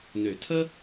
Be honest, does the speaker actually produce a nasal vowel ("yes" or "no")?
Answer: no